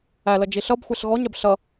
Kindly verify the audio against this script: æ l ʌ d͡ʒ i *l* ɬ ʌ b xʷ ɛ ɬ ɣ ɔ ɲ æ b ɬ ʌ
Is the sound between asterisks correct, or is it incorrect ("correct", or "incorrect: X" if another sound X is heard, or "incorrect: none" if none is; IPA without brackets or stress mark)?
incorrect: none